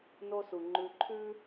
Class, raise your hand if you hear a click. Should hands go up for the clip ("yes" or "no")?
yes